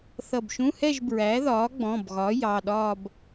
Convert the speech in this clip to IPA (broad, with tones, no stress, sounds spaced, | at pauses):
θ ʌ˧˩ b ʃ ũ˧˥˧ h ɛ˥˧ ʒ b ɹ æ˩˥ ð ɒː˩˥ ɡ͡b ɔ̃˩˧˩ b ɣ ɒ˩˥ j ɑ˩˧˩ ɗ ɒː˥˧ b